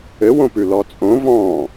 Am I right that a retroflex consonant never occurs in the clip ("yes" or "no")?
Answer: yes